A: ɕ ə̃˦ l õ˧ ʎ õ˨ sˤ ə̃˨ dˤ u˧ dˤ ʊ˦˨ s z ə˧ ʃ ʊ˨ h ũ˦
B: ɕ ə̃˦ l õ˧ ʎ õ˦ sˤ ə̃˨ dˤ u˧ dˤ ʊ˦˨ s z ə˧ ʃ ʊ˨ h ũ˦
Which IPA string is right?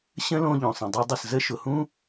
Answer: A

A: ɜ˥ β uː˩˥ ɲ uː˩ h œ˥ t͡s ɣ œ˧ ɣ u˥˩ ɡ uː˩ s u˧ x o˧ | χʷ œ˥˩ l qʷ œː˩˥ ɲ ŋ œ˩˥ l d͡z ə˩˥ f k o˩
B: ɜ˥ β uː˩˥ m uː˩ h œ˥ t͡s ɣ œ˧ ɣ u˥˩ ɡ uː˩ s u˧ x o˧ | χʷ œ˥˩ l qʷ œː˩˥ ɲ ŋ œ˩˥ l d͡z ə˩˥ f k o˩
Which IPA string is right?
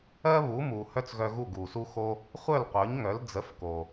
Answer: B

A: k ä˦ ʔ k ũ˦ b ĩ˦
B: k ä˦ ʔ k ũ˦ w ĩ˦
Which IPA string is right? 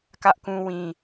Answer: B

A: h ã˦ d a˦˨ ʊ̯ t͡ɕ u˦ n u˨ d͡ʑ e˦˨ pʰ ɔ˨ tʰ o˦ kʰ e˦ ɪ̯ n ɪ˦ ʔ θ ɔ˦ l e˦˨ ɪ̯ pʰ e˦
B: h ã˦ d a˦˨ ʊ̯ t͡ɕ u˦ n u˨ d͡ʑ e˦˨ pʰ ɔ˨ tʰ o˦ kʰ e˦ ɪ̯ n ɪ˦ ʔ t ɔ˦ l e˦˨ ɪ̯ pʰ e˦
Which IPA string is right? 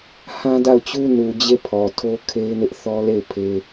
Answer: A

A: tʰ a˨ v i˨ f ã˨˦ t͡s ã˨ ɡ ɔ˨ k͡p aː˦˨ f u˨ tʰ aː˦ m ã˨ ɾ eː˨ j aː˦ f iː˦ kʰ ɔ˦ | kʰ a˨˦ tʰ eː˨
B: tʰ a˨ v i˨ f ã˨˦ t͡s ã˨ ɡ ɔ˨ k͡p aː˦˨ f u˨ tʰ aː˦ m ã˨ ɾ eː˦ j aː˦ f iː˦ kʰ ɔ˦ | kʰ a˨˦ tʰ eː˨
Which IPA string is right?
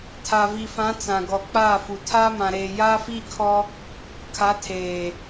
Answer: A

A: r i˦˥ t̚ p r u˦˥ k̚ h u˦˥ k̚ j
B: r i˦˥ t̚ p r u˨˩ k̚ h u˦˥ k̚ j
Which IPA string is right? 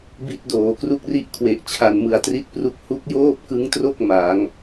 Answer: A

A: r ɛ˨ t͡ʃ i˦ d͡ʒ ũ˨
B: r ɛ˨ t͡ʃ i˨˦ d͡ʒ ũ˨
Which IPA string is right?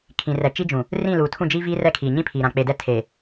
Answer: A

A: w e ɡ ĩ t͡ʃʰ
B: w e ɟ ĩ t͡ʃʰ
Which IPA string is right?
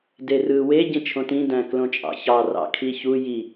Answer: B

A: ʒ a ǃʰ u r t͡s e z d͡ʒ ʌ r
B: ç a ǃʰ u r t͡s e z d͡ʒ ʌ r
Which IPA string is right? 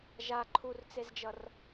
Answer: A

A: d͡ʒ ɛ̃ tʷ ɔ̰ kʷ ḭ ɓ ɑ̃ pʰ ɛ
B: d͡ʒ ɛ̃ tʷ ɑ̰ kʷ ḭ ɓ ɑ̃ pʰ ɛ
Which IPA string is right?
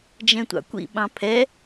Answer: B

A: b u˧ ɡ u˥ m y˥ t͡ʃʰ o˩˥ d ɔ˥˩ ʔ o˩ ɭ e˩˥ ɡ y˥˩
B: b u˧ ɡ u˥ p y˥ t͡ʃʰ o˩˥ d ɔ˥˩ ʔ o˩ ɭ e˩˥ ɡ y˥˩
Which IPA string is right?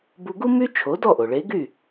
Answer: A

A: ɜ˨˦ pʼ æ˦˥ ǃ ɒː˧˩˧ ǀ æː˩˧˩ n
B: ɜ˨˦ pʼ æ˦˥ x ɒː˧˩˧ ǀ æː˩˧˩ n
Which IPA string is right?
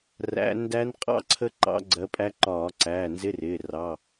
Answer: A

